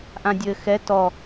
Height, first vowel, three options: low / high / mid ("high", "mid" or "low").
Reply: low